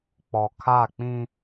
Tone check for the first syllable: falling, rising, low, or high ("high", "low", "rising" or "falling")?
low